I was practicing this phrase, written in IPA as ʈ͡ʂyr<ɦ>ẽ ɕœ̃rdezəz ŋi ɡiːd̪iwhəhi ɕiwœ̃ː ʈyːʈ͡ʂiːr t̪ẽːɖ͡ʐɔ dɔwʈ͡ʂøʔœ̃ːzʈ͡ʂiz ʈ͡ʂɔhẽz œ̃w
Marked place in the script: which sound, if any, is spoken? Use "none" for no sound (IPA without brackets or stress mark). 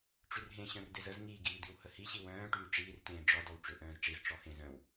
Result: ɦ